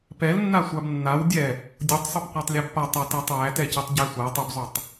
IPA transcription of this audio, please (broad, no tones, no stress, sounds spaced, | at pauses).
p ɛ l nː a sʷ a b nː a w dʲ ɛ | dʲ o tˤ sˤ o p qʷ æ tˤ lʲ æ b p a tˤ a t æ tˤ w æ t ɛ c ɛ tˤ ɟ æ sʷ a tˤ o b zˤ o tˤ